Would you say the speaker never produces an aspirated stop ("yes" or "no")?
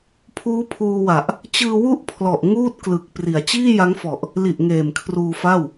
no